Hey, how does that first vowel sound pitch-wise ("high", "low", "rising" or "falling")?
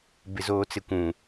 low